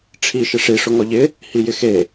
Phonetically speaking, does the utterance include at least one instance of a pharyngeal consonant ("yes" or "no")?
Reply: no